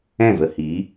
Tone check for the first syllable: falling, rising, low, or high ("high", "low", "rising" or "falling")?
falling